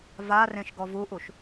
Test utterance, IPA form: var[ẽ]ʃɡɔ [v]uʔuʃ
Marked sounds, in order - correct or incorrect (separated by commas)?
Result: correct, correct